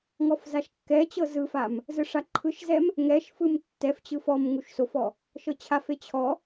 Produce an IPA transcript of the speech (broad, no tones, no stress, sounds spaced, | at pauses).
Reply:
ŋ ɔ f z a ʃ kː ɛ t͡ɕ ɤ z ɯ f a m | z ɯ ʂ a ǃʰ ɯ ʃ z ɛ m | ŋ ɛ ʃ f ɯ m tː ɛ f t͡ɕ ɯ f ɔ m ŋ u ʃ s o f ɔ | ʃ ɤ t͡ɕʰ a f e t͡ɕʰ ɔ